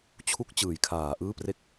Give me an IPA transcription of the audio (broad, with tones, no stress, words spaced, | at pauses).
t͡ɕʰu˦˥k̚ t͡ɕɯː˩˦jkʰaː˩˦ ʔɯː˥˩pre˥˩k̚